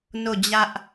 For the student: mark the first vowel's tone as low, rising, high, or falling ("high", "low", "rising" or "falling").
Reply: falling